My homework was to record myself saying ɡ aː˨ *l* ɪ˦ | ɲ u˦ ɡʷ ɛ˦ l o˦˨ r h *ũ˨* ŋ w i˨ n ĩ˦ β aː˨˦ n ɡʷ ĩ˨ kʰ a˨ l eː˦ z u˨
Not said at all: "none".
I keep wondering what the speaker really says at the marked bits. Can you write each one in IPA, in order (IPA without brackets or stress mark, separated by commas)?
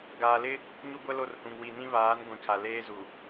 l, ũ˨